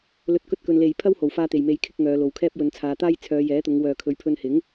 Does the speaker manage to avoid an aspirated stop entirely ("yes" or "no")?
no